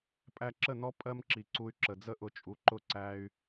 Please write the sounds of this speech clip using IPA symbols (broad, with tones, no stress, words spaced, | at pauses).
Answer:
pʼæ˧ǁə˦˨nɔ˦ pʼɜ˦mǁi˨ǀu˧y̯ǁə˨ d͡zə˦ʔʊ˨t͡ʃʼu˨ǃʊ˦˨ ǀæ˧y̯